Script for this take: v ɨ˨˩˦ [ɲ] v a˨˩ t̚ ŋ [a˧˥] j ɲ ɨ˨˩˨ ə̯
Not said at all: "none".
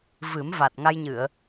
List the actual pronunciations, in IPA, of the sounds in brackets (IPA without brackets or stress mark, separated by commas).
m, a˧